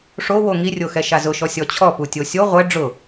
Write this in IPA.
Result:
ʂ o w o ŋ i rʲ o x ɛ ʃ a z ʊ ʃ ɔ sʲ ɔ t͡ɕʰ ɔ p u tʲ o sʲ o ʁʷ ɛ ɖ͡ʐ ʊ

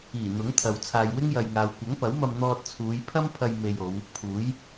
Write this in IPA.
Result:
iː˨˩ n̪ ʊ˨˥ ŋ t̪ʰ ɐ˨ w t͡sʰ aː˨ j w ɪ˥ ŋ j ɐ˨ j ŋ aː˨ w kʷ ɐ˨˥ ŋ p ɐ˨˥ w m ɐ˧ m n̪ ɔː˧ t̚ t͡sʰ uː˨˧ j pʰ ɐ˥ m pʰ ɐ˧ j m e˧ j o˨˧ w | pʰ uː˨˥ j

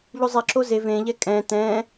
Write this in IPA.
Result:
ʎ u zˤ i ǁ o z e v ẽ ʎ ɛ kʼ ɛ̃ t ɛ̃

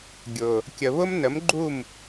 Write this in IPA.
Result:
ɡʲ ʊ˨ | kʲ ə˨ β ʊ˦ m n ə˨˦ m ɡ͡ǃ u˦˨ m

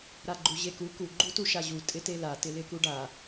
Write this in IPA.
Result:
ɾ a ɡ͡ǃ u ʑ e k u k u ɡ͡ǃ u t u ʃ a ʑ u tʼ ɪ t e l a t ɪ l ɪ k u ɖ a

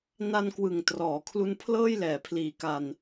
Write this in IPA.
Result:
n a˧ n k w ɯ˨˩ ŋ t r ɔː˩˦ kʰ l u˧ n pʰ l ɤː˥˩ j l ɛː˩˦ pʰ l iː˨˩ k a˧ n

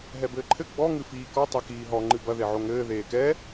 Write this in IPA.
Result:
ɦ ɛ b ɘː ǃʰ ɘ ɡ͡b ɔ ŋ ɨ f iː k ɔ tˤ ɛ k iː ɦ ɔ ŋ͡ǃ ɨ b ɐ ð e ʕ o ŋ ɘː ð eː k ɛ

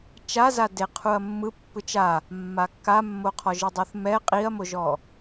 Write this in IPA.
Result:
t͡ʃ a z a d e qʰ u ɐ̯ mː ɯ pː ɯ t͡ʃ a | mː a kː a mː o qʰ ɔ ʒ ɯ dˤ ɯ θ m ɛ qʼ i ɐ̯ m o ʒ ɔ

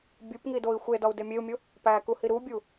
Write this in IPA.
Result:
bʲ u p ŋ i d o i̯ xʷ e d ɒ u̯ d e mʲ e u̯ mʲ o | p æ k u h i ɾ u bʲ u

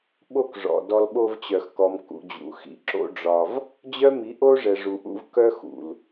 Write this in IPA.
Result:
ɓ o˦ k ʐ ɔ̰˨ d ɔ˧ l ɓ o˧ v t͡ɕ œ˨ x k ɔ˨ m k ṵ˨ d͡ʑ ṵ˨ x ḭ˨ ǁ o̰˦ ɖ͡ʐ ɒ˧ v | d͡ʑ œ˦ m i˨˦ ʔ o˦ ʐ ɛ˨ ʐ u˨ ʔ ṵ˧ v k œ˦ x ṵ˨ l

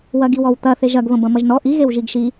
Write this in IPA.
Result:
w ɐ ɡ i w ɔ w t̪ ɐ θ e ʒ ɐ ɡ β ə̃ b ɐ̃ m ɐ ʒ n ɔ ʔ i ɣ e w ʒ i ɡ ʃ i

